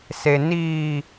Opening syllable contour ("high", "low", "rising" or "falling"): low